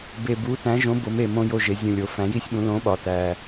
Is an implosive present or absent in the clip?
present